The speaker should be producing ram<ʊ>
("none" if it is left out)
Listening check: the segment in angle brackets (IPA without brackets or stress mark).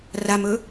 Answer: ɵ